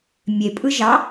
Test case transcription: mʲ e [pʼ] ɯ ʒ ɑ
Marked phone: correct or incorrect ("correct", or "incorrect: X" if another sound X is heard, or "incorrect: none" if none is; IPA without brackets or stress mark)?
correct